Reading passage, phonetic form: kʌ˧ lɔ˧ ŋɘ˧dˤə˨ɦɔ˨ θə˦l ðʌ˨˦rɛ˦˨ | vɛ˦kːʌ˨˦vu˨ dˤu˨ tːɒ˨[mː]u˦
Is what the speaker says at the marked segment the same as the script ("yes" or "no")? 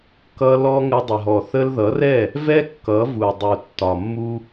yes